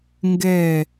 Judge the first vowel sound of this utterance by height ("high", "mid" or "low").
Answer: mid